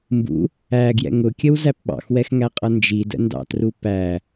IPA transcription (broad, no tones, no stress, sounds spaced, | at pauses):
m b ṵ | æ ɡ j ɛ̰ ŋ ʊ kʲ ə w z æ p ɓ ɑ̰ x w ɛ x ŋ æ qʼ ʌ n d͡ʒ i d ə̰ n d ɑ̰ t r u p æ